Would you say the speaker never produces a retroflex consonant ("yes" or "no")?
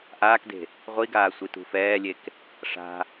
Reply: no